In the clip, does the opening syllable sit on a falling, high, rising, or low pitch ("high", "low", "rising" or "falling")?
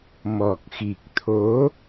low